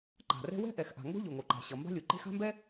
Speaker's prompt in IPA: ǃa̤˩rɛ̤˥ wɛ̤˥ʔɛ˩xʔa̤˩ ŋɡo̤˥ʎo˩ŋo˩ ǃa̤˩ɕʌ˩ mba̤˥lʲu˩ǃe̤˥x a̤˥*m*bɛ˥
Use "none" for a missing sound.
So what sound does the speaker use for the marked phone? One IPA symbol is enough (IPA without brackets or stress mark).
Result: m